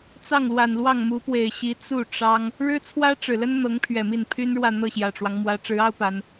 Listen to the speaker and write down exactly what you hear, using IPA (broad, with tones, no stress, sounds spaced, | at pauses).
t͡s ɑ˥˩ ŋ l w a˨˩ n l w ɑ˥˩ ŋ m u˧˥ p w e˨˩ ɪ̯ ɕ i˧˥ t͡s u˥˩ ʈ͡ʂ ɑ˥ ŋ | ɻ ɻ̩˥ t͡sʰ w ä˥ ʈ͡ʂ ɻ̩˨˩ l ə˥ n n̪ ɤ˧˥ ŋ pʰ ɥ ɛ˨˩ m i˥˩ n pʰ y˥ n ɻ w ä˥˧ n̪ ɤ˥˩ ɕ j ä˨˩ ʈ͡ʂ w ɑ˦ ŋ m w ä˧˥ ʈ͡ʂ ɻ̩˧˥ ɑ˥ ʊ̯ p a˧˥ n